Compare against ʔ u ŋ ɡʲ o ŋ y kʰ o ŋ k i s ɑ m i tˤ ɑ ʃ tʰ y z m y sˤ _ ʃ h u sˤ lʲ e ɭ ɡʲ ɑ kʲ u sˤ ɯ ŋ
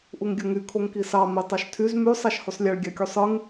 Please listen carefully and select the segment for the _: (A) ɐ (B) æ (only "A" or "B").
B